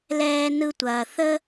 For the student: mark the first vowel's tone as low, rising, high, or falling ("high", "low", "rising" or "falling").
high